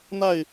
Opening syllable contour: falling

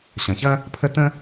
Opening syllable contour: low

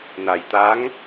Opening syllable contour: low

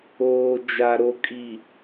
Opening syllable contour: low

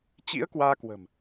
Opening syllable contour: rising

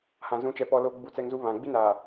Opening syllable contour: low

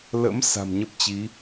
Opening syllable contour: rising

